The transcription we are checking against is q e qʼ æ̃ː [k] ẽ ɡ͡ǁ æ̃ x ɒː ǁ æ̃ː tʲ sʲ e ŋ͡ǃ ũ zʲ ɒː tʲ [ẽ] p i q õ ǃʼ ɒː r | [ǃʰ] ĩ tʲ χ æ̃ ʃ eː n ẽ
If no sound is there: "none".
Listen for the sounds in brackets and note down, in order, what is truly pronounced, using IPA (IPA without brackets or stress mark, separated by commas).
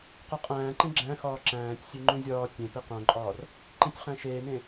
ǃ, ẽ, ǃ